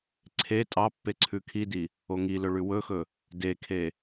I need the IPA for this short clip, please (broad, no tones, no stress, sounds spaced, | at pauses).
ǀʰ e tʼ ɑ pː e ǀʰ ʉ kʰ i d i | o ŋ i l ɵ ɭ ʉ w ɵ x ɵ | d e kʰ e